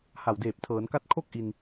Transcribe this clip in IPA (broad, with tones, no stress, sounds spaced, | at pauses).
h a˨˩ w d eː˨˩ p̚ tʰ ɤː˩˦ n k a˦˥ t̚ kʰ o˥˩ k̚ ʔ i˧ n